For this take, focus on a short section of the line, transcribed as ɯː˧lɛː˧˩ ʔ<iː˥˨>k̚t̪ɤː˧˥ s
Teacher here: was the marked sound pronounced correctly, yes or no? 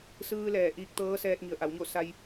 no